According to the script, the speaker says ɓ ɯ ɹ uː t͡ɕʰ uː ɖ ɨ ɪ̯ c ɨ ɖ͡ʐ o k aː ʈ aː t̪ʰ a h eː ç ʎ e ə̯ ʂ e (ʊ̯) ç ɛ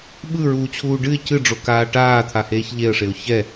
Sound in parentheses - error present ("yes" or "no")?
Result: no